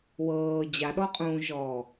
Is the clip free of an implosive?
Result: no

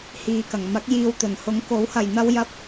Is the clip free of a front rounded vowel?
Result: yes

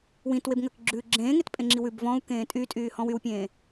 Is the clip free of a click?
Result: no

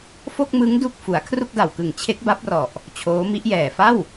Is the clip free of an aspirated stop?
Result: no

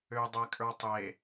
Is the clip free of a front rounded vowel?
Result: no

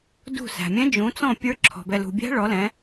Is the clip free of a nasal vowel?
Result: no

